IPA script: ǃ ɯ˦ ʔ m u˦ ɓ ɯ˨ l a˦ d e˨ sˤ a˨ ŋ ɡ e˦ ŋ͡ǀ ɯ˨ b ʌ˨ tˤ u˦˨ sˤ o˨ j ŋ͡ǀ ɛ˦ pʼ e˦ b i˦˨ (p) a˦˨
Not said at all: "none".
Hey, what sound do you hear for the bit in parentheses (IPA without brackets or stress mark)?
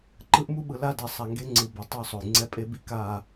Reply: k